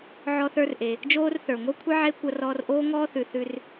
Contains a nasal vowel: no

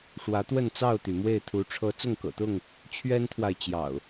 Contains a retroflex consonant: yes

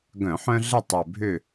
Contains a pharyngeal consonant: yes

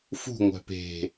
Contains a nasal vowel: no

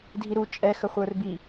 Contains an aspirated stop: no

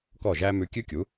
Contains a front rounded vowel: no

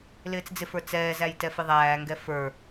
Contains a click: no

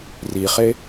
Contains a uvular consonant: yes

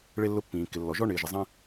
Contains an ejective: no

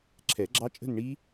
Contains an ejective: yes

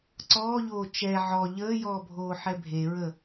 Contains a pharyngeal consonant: yes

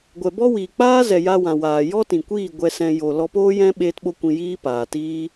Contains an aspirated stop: no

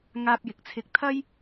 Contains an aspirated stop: yes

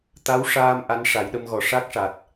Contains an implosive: yes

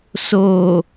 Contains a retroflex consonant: no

